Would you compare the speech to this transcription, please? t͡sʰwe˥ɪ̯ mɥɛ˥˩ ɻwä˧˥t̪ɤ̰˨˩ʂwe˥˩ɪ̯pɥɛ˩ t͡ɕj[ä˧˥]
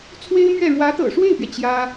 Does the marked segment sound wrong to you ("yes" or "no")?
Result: yes